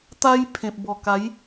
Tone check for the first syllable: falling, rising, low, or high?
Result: high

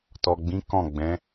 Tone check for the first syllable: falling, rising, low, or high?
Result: low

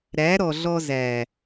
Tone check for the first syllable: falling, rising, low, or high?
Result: rising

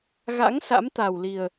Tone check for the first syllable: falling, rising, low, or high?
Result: rising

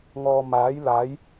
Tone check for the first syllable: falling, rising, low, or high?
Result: low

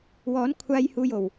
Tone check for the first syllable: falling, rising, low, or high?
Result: rising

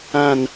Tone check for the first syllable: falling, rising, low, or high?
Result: falling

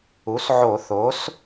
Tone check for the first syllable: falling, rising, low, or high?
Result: rising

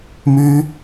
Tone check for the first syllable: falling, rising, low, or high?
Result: high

